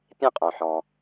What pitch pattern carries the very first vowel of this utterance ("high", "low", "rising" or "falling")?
high